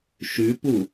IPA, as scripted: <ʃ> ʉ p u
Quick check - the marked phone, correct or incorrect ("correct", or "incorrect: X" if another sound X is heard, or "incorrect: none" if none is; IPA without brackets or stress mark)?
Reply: correct